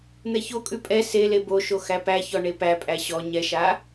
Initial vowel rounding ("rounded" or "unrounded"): unrounded